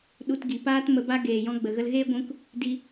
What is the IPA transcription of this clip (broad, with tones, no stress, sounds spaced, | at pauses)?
ɗ u˧ t ɡ i˨ p aː˦ t m ə˧ b a˦ ɡ eː˨ j ɔ̃˧ ɡ͡b ə˨ ɣ ə˧ l ɣ eː˦ ɡʷ ũ˧ k | d i˧